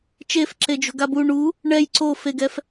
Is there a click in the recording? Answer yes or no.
yes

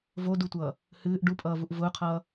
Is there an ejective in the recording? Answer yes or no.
yes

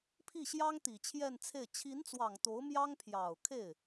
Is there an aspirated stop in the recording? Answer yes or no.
yes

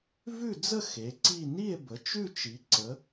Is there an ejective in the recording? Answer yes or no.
no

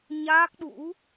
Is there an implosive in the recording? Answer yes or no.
yes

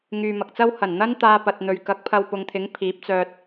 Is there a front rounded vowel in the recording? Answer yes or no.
yes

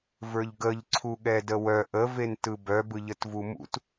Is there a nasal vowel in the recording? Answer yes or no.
no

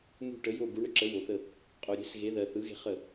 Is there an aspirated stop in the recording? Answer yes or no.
no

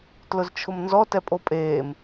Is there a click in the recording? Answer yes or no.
no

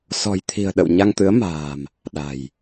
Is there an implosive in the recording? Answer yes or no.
yes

